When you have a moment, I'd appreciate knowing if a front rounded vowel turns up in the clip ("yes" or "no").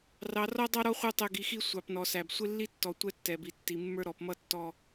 no